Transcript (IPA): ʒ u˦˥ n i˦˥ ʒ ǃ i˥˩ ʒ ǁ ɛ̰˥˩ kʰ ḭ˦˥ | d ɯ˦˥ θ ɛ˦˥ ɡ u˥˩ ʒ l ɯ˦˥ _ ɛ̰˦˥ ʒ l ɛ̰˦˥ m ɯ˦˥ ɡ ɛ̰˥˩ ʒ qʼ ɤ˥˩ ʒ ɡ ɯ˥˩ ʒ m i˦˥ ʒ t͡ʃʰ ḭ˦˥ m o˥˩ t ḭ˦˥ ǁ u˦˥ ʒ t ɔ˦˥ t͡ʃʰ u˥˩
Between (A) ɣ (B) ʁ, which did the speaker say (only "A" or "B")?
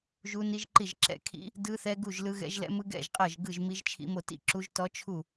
A